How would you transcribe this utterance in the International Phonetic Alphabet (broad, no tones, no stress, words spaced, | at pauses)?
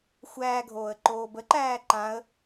xʷæːɡʱoːə̯ ǃoːbəǃæː ǃãə̯